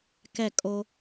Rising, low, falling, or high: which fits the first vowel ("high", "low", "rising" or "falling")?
falling